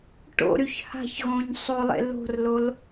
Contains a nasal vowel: yes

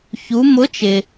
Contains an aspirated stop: no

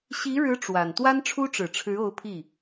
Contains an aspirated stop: yes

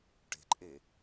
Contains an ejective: yes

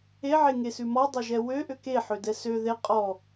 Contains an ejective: yes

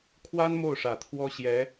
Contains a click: no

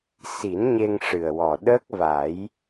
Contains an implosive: yes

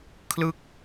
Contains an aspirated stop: yes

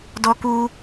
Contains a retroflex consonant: no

